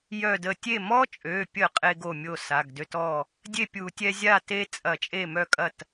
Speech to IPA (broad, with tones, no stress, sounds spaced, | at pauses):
j œ˧˩ d ə˧˩ tʲ e˥˩ m ɔ˦ t͡ʃʼ ø˩˧˩ pʲ ə˧˩˧ qʼ e˦ ɡ o˥˩ mʲ o˥˩ s a˩˧˩ ɡ d ø˦ t ɔ˥˩ | dʲ e˥˩ pʲ u˧˩˧ tʲ ɛ˦ zʲ a˥˩ t e˦ t͡sʼ ɐ˧˩˧ t͡ʃʼ e˥˩ m œ˥˩ kʼ ɐ˥˩ t